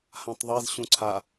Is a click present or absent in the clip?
present